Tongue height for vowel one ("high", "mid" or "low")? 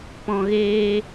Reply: mid